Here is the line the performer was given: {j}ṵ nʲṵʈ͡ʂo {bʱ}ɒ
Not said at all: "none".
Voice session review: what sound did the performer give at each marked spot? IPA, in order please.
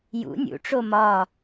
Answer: j, m

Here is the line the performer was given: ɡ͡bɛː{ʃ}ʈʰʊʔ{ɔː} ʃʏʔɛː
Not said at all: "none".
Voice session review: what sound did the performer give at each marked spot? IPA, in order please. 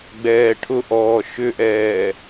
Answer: none, ɔː

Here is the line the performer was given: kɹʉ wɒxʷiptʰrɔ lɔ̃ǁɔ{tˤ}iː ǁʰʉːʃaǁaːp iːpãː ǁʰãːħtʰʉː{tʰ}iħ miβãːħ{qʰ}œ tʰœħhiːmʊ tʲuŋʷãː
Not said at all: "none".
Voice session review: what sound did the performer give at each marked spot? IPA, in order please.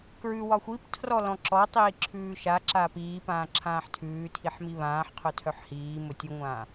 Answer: tˤ, tʰ, qʰ

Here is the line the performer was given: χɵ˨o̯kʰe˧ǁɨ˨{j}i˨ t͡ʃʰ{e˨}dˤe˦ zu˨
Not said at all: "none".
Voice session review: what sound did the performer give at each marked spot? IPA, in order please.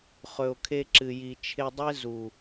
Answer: j, e˧

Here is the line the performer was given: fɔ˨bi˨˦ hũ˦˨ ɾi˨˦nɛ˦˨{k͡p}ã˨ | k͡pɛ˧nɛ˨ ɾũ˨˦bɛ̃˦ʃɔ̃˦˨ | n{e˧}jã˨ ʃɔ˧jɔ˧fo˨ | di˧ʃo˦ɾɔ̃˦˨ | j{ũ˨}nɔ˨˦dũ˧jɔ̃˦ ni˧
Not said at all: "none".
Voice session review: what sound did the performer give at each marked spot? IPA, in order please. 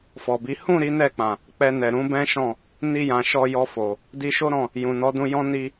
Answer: k͡p, i˧, ũ˨

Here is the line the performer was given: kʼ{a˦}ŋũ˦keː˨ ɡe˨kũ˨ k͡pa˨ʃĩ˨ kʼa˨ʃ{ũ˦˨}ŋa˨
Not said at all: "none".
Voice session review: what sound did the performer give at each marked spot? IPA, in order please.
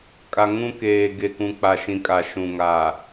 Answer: a˨, ũ˨

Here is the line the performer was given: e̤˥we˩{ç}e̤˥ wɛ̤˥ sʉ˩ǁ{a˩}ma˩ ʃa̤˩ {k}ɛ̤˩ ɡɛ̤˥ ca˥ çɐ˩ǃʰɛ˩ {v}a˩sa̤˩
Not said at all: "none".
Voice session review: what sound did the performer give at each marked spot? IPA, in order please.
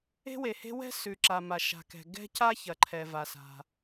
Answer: h, a˩, k, v

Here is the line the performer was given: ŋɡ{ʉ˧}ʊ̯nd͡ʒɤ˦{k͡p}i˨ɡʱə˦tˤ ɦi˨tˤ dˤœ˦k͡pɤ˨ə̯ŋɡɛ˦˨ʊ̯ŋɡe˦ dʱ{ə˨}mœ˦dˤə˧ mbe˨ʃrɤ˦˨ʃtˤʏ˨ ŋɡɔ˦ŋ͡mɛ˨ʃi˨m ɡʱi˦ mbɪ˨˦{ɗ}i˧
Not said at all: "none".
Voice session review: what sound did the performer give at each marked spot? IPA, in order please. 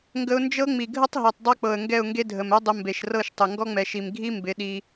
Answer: ə˧, ŋ͡m, ə˨, ɗ

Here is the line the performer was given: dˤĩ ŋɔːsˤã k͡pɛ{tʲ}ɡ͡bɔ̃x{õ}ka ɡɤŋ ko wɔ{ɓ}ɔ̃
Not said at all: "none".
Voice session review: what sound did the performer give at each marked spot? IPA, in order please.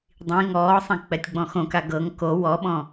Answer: tʲ, õ, ɓ

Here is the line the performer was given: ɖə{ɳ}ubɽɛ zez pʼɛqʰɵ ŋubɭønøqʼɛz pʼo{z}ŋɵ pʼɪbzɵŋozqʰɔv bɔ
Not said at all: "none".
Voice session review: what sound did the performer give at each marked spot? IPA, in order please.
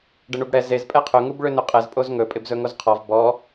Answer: ɳ, z

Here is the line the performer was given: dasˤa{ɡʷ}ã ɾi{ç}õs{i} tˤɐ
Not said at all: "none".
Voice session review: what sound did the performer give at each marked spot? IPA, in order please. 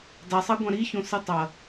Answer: ɡʷ, ç, ɨ

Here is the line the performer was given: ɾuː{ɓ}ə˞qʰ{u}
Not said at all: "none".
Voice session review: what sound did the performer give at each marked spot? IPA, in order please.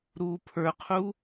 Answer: pʰ, u

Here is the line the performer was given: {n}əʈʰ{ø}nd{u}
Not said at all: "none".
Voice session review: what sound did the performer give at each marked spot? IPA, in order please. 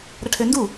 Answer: ɾ, ø, u

